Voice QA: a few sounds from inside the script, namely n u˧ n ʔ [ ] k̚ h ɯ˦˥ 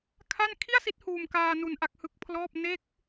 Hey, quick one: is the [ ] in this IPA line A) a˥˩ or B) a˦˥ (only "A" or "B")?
B